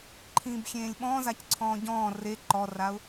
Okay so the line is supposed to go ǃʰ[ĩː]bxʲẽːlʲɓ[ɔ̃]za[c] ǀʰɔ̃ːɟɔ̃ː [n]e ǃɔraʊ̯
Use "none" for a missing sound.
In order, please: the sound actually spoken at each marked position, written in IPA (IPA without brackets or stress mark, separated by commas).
ĩː, ɔ̃, c, r